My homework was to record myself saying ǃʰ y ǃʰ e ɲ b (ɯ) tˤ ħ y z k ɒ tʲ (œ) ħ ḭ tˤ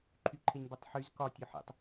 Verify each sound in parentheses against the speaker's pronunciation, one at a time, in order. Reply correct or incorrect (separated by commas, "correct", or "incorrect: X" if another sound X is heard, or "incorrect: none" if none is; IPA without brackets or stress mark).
correct, correct